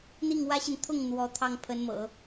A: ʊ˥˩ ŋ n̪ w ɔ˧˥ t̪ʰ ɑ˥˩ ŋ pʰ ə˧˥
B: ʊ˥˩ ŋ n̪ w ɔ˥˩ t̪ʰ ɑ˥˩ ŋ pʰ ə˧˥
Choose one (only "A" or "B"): A